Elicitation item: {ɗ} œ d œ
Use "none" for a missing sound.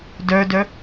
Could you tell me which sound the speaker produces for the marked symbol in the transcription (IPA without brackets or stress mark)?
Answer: d